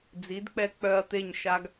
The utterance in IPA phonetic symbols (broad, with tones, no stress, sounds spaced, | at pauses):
d͡z i˩˥ d k͡p ɛ˧ k͡p œ˧ ɐ̯ t̪ e˥˩ ɲ ʃ a˧ ɡ